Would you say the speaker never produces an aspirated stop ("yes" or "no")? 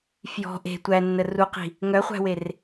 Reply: yes